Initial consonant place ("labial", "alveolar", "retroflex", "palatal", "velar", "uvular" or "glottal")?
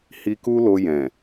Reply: glottal